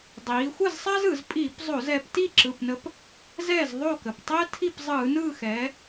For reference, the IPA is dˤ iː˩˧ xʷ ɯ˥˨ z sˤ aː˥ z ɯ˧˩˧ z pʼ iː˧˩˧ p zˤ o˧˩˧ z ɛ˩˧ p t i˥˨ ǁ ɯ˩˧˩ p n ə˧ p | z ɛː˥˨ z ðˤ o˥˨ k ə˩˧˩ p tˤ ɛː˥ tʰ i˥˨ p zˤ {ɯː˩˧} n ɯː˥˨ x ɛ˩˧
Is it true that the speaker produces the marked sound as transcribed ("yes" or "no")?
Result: no